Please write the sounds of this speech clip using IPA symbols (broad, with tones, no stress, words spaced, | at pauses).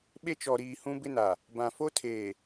ɓe˦t͡ʃɔ˨ɾiː˨ hũ˦bɪ˦na˨ | bã˨fo˦tʰeː˨